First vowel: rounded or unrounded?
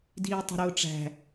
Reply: unrounded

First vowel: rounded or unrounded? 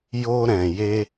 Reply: rounded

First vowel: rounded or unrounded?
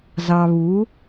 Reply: unrounded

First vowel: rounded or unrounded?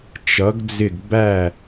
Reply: unrounded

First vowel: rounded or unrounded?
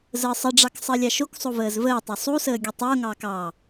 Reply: unrounded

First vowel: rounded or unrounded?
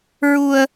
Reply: rounded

